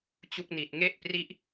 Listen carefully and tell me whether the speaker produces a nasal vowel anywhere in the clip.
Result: no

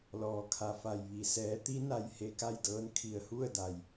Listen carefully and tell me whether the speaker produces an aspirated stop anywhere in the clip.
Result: yes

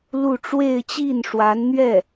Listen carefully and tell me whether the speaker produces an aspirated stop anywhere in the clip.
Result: no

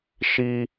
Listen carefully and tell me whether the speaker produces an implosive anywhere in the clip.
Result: no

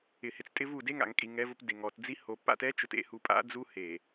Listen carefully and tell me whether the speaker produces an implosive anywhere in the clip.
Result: no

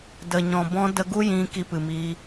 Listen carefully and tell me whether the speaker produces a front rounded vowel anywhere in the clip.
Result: no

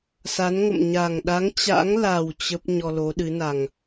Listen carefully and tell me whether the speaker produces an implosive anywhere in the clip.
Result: yes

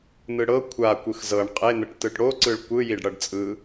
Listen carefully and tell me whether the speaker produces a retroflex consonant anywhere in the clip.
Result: yes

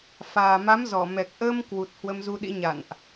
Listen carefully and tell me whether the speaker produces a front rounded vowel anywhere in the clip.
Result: no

